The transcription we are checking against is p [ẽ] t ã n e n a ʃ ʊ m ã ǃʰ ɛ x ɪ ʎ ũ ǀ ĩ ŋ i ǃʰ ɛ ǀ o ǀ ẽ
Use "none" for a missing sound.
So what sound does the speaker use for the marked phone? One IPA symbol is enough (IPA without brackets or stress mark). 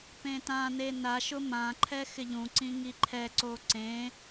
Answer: ẽ